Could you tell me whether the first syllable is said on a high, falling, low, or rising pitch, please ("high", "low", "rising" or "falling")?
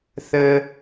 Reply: high